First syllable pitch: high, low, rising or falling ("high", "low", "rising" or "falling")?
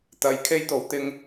low